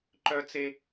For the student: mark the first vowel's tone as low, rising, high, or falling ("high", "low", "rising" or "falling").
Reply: high